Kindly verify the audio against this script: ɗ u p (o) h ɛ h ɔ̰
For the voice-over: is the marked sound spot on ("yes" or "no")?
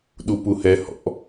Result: no